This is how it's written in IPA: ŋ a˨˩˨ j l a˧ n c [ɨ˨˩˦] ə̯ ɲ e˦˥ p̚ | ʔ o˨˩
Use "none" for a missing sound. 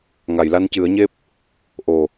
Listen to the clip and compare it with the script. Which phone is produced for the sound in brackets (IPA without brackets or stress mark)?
ɨ˨˩˦